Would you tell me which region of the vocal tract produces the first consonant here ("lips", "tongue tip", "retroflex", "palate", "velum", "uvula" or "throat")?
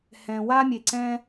throat